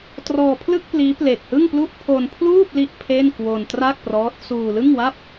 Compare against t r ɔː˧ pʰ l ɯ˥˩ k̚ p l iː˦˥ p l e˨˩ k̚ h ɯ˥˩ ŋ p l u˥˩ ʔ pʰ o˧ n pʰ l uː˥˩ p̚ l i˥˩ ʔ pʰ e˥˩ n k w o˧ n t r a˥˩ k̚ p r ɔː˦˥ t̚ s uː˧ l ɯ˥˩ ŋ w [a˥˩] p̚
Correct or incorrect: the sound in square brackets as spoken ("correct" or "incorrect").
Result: correct